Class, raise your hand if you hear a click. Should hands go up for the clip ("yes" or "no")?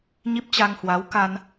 no